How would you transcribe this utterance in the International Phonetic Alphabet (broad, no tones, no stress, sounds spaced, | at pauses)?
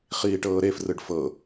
χ iː ʈ ɤː ɾ e f r ɯ ɖ f ɤ